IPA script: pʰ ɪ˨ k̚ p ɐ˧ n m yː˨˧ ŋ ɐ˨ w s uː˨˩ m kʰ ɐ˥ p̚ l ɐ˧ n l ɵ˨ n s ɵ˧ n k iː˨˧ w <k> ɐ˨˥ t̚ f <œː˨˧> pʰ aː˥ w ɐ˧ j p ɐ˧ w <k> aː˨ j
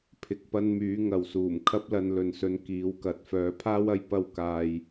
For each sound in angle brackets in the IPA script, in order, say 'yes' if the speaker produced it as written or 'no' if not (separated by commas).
yes, yes, yes